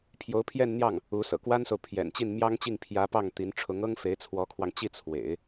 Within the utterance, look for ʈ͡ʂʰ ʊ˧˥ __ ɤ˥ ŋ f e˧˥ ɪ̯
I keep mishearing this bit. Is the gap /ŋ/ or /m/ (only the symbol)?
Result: ŋ